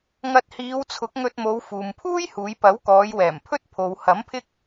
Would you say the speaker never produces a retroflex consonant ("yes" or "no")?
yes